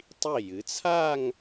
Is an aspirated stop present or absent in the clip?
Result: present